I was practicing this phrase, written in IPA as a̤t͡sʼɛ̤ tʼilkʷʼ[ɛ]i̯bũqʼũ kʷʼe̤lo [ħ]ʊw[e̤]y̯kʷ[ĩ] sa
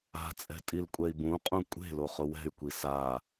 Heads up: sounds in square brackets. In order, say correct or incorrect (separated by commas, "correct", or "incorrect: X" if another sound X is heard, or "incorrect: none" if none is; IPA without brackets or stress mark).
correct, incorrect: χ, incorrect: ɛ̤, incorrect: i